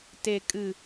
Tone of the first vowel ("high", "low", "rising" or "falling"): low